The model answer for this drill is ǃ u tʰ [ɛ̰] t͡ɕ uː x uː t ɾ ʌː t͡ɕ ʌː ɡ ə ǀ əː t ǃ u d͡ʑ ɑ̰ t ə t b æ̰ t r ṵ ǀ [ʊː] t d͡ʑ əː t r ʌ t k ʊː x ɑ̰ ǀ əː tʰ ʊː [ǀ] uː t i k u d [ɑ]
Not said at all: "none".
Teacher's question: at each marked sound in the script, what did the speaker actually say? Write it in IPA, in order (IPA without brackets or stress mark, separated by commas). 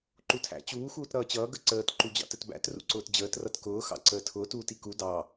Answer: æ̰, ʊː, t, ɑ